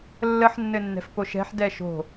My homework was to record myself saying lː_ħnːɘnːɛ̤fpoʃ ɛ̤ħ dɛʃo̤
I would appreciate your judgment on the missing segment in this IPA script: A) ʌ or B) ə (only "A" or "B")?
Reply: B